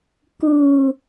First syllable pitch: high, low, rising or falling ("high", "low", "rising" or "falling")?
low